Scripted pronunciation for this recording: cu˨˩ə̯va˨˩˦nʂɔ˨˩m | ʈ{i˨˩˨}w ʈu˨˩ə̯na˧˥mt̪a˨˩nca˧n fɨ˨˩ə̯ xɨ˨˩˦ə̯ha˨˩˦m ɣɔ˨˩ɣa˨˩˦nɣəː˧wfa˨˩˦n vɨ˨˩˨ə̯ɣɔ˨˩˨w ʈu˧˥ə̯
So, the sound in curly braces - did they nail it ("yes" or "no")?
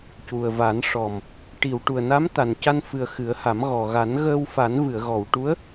yes